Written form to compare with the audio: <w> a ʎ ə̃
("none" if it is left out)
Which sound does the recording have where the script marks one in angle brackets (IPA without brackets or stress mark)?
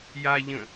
j